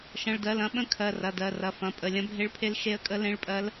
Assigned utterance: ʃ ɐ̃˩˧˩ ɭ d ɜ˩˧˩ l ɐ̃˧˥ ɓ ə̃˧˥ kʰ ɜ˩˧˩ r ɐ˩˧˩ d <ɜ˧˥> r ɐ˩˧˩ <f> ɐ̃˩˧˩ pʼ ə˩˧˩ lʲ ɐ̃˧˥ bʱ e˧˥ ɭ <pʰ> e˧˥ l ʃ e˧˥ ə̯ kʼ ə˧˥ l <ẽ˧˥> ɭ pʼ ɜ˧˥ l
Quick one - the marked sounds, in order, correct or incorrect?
incorrect, correct, correct, correct

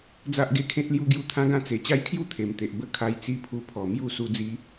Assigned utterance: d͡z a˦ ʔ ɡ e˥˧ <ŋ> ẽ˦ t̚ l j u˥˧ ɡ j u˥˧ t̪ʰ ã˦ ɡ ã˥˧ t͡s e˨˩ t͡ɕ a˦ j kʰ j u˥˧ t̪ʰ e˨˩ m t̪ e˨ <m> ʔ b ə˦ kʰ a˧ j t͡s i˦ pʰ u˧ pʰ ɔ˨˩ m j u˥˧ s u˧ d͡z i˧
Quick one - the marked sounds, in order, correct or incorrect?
incorrect, incorrect

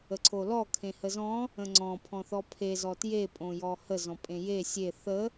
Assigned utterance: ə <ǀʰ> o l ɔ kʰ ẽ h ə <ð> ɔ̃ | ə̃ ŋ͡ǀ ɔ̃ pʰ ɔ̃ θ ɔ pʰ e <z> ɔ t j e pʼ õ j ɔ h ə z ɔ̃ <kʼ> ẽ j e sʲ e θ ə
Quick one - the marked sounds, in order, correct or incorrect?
correct, incorrect, correct, incorrect

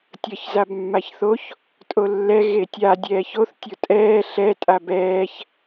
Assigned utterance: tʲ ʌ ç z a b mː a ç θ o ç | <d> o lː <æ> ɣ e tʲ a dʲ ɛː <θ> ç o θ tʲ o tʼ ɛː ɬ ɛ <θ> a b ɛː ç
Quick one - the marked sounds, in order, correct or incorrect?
incorrect, incorrect, incorrect, incorrect

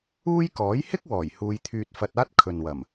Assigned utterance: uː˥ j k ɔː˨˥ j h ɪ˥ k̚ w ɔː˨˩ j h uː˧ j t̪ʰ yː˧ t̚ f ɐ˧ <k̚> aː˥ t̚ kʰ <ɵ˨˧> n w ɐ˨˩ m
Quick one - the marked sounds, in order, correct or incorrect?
incorrect, incorrect

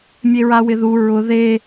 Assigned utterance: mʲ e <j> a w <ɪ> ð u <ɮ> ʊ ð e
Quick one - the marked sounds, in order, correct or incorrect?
incorrect, correct, incorrect

